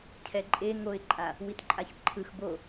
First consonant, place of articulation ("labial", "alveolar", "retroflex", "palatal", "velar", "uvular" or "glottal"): palatal